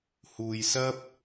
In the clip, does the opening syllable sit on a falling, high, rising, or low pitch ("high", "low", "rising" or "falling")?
low